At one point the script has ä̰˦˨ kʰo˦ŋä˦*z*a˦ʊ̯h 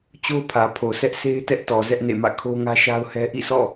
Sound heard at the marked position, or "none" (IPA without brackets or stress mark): ʃ